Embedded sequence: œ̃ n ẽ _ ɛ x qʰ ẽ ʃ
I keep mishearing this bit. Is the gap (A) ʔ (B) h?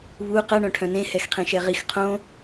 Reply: B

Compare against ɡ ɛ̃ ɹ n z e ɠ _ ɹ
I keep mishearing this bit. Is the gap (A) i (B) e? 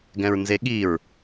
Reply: A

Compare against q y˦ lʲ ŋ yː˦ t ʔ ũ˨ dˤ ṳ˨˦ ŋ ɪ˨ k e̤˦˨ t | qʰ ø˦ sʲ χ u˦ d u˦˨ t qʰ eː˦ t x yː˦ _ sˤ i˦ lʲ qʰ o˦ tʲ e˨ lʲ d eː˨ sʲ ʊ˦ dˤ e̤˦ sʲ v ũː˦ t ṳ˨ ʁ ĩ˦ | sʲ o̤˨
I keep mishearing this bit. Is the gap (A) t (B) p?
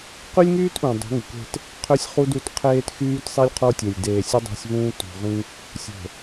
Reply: A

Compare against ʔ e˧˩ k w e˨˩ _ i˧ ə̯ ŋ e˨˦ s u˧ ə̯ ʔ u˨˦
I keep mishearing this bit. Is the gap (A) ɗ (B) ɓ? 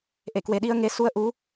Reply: A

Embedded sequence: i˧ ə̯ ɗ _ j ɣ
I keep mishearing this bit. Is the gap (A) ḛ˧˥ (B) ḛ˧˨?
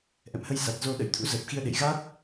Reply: B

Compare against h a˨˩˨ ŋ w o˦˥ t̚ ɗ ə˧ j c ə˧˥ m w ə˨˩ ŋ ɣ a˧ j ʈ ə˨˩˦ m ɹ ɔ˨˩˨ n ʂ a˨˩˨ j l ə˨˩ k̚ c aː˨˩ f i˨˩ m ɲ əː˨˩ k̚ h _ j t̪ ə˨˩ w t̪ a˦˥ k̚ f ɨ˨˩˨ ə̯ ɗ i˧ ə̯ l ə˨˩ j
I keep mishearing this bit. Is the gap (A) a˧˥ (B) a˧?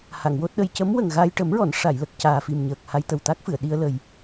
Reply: B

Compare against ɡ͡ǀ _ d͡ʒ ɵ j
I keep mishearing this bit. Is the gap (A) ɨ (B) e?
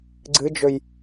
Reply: A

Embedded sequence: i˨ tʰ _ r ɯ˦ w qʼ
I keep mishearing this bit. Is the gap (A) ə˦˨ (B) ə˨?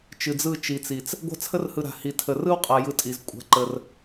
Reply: B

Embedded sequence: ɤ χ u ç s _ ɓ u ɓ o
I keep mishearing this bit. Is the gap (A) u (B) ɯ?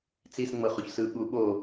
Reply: B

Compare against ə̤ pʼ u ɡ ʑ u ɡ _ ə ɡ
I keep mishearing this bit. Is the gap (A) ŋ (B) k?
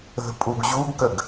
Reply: B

